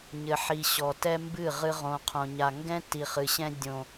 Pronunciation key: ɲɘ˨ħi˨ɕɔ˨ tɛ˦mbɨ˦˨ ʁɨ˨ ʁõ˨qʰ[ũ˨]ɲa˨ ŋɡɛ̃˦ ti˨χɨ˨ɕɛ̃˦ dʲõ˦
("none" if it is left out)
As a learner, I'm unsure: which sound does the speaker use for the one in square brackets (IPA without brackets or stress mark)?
õ˨